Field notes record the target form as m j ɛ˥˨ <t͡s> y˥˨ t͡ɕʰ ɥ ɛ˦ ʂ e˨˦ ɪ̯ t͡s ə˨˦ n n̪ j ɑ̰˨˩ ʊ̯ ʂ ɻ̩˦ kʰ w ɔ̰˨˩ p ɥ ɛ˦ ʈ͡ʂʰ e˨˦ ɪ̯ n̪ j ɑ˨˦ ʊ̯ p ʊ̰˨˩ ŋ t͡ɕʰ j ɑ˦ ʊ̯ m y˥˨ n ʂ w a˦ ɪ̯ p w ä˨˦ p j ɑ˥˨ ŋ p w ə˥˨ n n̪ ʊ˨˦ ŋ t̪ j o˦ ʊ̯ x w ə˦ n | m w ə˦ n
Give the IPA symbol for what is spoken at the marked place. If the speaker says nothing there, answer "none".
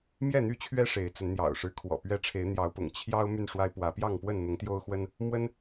n̪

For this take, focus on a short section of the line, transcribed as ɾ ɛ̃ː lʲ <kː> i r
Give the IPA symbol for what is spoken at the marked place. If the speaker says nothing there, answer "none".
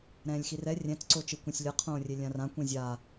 x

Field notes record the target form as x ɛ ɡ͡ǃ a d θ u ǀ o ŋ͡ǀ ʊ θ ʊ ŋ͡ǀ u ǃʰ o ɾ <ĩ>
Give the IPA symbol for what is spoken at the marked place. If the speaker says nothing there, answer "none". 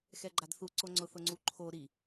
i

